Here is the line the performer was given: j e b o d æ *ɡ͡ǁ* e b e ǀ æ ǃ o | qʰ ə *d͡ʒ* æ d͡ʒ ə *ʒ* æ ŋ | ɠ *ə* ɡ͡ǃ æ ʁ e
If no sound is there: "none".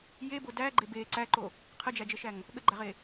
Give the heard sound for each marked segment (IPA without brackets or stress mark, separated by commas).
ɡ͡ǃ, d͡ʒ, ʃ, ə